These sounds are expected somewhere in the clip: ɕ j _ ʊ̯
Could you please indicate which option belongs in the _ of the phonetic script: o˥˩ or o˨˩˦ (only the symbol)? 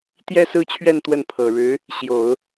o˨˩˦